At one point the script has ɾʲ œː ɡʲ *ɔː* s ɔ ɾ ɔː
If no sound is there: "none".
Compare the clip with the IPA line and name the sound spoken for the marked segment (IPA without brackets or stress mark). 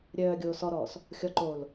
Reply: oː